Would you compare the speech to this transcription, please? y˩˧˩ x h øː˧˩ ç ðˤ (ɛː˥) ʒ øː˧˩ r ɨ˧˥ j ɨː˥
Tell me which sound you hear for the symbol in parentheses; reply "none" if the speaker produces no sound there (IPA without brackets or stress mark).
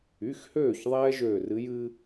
ɛː˥